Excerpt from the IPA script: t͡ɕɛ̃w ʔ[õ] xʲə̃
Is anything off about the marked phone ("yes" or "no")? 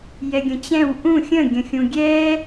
yes